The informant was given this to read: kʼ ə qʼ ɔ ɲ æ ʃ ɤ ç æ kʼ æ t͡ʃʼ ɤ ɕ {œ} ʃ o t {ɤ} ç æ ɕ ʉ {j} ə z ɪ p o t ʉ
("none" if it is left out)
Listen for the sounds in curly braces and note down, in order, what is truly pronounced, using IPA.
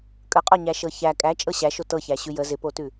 æ, ɤ, j

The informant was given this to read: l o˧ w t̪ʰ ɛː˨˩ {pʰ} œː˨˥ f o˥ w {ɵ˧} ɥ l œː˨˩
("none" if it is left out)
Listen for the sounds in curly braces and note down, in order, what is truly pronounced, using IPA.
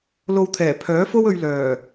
pʰ, ɵ˧

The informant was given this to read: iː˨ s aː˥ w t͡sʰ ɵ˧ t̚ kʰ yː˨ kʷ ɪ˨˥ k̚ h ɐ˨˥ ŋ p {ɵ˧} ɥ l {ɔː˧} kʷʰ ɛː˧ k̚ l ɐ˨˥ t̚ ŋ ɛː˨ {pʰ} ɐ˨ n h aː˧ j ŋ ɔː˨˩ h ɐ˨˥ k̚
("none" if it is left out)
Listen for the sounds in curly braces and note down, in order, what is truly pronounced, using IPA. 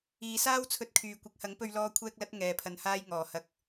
ɵ˧, ɔː˧, pʰ

